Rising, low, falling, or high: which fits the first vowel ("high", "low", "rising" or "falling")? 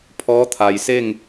rising